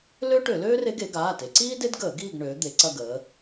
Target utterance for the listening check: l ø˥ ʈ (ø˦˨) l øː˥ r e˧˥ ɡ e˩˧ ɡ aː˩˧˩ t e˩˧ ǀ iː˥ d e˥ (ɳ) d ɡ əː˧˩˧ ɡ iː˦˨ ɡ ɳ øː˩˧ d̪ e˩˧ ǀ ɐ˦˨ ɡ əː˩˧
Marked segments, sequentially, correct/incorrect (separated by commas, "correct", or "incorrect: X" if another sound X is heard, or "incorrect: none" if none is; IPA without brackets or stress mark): incorrect: ø˧˩˧, incorrect: none